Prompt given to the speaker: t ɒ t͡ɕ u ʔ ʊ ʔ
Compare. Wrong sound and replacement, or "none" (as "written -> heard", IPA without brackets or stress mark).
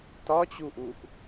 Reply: ʊ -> u